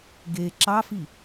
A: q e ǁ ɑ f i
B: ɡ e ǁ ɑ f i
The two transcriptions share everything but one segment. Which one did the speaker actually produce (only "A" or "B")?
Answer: B